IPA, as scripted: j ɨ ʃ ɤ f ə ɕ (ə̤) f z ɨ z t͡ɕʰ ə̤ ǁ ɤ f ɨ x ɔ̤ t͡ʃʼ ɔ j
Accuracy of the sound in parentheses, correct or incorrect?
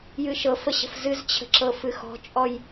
correct